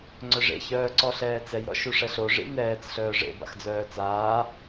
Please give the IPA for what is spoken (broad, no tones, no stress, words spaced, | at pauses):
ŋ͡ǀœʐḛ çœːǀɔɬɛːt͡sɛj ɾɔ̰ʃuʂɛɬo ʐḭnɛːt͡s ɬœːʐḛ ba̰xd͡zœːt͡saː